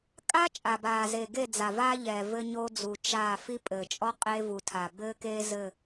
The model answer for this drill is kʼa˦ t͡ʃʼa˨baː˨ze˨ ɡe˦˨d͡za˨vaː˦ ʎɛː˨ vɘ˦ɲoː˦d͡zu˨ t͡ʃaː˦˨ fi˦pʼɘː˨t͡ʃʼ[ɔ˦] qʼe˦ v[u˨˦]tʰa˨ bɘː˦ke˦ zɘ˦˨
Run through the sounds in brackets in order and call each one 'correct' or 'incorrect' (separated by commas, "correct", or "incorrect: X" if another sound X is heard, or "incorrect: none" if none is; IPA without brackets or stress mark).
correct, incorrect: u˨